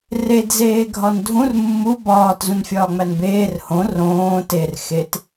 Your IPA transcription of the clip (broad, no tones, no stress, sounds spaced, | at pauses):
r e d z eː ɡʱ ɒ n dʱ ũ r mː u b ɒː t z ũ n fʲ ɒː ŋ͡m æ n b eː r h õ r õː t e r x e t